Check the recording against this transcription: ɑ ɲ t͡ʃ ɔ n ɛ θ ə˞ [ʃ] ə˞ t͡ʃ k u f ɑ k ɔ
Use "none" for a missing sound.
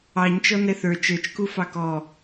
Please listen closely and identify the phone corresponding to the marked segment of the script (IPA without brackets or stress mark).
t͡ʃ